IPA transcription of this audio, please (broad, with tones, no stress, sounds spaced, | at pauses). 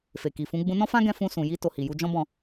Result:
f e˨ k i˨ f ũ˨˦ ɡ͡b ũ˧ n ɔ̃˦ f ã˦ ɡ ɛ̃˧ f ũ˧ s ũ˨ j i˧ t o˨ h i˨ j u˧ d͡ʒ ɔ̃˦ b ɔ̃˦˨